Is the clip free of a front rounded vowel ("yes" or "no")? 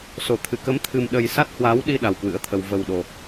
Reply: yes